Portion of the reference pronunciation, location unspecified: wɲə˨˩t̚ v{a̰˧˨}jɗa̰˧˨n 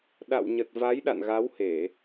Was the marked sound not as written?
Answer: yes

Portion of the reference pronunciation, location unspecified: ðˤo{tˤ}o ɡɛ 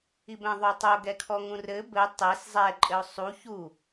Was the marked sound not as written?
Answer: no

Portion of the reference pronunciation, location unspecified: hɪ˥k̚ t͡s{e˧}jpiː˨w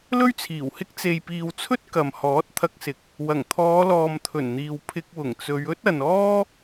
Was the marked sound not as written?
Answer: yes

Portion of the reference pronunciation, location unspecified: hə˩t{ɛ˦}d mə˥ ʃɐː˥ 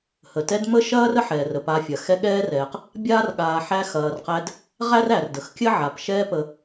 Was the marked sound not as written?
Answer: no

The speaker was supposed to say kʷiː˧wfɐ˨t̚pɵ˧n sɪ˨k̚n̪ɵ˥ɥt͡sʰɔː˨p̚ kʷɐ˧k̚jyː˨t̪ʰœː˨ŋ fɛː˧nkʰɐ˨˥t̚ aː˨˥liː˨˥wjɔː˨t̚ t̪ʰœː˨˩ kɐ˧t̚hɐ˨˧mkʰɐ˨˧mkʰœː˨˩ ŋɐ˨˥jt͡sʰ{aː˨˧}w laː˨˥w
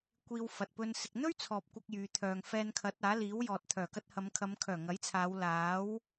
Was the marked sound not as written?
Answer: no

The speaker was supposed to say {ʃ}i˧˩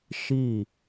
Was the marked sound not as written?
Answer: no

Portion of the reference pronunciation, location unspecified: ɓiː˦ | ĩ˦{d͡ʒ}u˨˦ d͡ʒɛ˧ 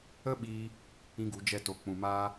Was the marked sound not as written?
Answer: yes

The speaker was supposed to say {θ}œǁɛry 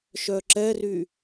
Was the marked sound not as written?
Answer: yes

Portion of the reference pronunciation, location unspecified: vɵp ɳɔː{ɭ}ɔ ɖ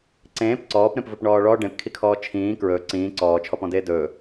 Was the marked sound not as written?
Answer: no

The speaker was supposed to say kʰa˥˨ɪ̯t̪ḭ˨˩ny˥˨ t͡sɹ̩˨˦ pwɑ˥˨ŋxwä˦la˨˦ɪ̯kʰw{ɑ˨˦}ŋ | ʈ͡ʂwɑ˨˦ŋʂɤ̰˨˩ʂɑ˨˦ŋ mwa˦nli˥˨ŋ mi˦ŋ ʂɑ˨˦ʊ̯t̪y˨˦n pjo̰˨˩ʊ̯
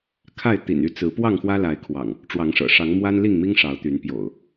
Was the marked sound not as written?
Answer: yes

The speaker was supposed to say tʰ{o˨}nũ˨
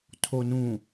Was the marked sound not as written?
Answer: no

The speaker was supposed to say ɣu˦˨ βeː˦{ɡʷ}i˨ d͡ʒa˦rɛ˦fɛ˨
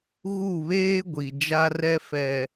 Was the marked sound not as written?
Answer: no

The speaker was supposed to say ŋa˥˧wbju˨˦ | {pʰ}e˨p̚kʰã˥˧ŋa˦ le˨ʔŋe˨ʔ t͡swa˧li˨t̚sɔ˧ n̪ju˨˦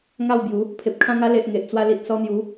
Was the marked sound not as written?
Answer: no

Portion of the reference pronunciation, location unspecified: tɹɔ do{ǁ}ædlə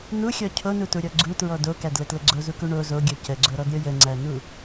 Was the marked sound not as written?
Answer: yes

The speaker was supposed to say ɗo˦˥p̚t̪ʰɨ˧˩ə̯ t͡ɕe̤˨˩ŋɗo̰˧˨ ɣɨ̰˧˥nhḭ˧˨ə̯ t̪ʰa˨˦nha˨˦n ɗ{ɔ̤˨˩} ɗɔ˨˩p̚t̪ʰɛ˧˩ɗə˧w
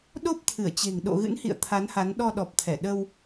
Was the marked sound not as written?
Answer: yes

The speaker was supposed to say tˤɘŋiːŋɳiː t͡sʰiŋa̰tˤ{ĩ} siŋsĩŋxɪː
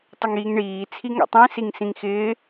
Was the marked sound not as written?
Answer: no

